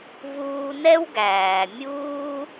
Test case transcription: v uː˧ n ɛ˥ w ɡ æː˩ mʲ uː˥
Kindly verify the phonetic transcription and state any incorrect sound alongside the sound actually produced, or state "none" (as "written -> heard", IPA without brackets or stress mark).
none